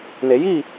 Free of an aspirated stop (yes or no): yes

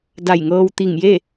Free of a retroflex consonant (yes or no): yes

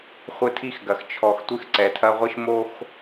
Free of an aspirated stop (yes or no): no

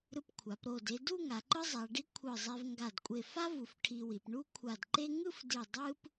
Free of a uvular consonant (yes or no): yes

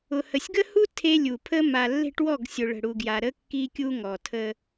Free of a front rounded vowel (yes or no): yes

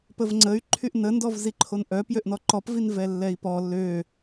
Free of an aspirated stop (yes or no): no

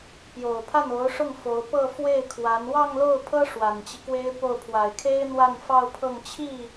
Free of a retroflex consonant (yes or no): no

